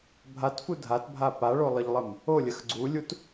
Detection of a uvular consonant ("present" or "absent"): absent